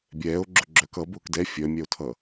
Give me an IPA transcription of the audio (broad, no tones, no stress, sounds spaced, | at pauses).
bʲ ɛː o̯ ɡ͡ǁ ʊ ɡ͡ǁ œ k ʌ b ʊː k d ɛ fʲ œ mʲ ɛ o̯ tʰ ʌ